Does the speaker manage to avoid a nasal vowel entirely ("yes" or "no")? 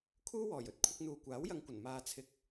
yes